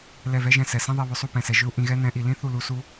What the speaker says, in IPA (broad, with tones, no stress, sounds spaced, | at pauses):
l ɛ˦˨ v ɛ˦ ʒ ɛ̃˧ s ɛ˨ s ĩ˦ ðˤ ɛ˧ β ʏ˨ sˤ u˦˨ p ɛ̃˨ s ɛ˨ ʒ ʏ˦ u̯ ʔ ĩ˧ ɣ ɛ˦ n ɛ̃˨˦ ʔ i˨ l ĩ˦ θ u˦˨ l u˧ s u˦